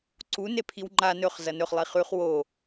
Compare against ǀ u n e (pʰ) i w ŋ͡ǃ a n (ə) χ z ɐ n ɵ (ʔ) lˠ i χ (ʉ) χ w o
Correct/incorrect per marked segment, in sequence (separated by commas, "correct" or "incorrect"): correct, incorrect, incorrect, correct